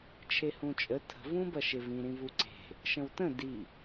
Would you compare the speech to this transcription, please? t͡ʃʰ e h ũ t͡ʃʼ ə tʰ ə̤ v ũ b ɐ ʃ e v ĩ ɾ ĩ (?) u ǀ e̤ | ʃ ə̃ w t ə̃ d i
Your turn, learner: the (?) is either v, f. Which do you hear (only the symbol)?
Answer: v